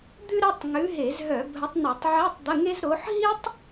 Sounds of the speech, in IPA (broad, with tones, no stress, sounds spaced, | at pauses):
d̪ ʉ˥ ɾ ɘ˧˥˧ tˤ ŋ ʉ˨˦ ɦ e˧˩˧ z ɦ œ˧˩˧ bʱ ə˨˦ tˤ n ɘ˧˩˧ tˤ ʕ e˧˥˧ tˤ d̪ ə˧˥˧ ŋ e˥ z ɾ o˨˦ ħ ɦ i˥ tˤ